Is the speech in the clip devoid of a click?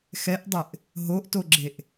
no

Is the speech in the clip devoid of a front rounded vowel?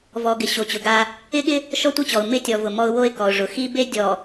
yes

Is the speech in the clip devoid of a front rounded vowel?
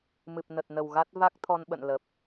yes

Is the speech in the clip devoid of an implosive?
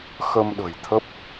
no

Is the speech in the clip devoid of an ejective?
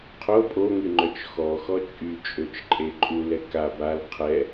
no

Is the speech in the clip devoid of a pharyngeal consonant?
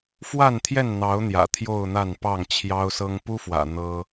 yes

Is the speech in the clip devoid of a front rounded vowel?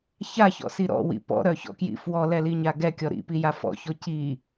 no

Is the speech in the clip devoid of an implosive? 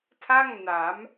yes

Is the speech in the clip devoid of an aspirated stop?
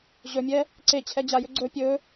no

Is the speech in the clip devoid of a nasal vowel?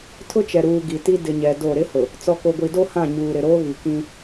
no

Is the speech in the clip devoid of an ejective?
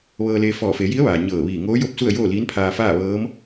yes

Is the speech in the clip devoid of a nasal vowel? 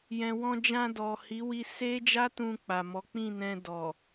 no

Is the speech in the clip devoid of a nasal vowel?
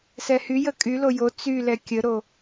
yes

